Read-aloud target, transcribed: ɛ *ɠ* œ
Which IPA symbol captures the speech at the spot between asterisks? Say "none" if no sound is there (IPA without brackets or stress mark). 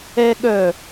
ɠ